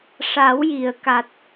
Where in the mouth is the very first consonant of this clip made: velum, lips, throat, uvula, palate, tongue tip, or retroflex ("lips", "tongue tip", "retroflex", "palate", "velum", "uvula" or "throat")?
retroflex